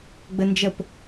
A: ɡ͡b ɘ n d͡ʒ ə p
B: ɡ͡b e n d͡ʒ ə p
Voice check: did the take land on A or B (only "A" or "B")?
A